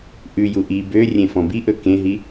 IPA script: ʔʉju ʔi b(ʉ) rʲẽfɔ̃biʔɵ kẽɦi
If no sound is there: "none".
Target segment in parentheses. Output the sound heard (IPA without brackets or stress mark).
ø